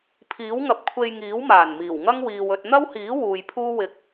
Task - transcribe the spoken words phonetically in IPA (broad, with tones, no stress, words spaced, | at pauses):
pʰiː˨˥wŋɐ˨p̚ kʷʰe˧jŋiː˨˥w maː˨˩nmiː˨˩wŋɐ˥ŋ wiː˨wɵ˧t̚ n̪ɐ˥whiː˨˥ wuː˨jpʰuː˥wɪ˧k̚